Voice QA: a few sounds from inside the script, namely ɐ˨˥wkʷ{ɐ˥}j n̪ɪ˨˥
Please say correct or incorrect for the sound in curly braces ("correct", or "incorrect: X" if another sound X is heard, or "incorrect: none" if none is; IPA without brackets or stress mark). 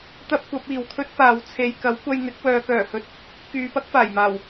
incorrect: ɐ˧